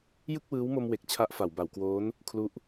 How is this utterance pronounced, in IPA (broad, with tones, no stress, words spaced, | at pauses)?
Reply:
jɯ˥˩k̚wɯː˦˥wmo˧mwe˨˩k̚ t͡ɕʰa˦˥ʔfa˩˦wba˩˦wkwoː˦˥n | kʰlu˦˥ʔ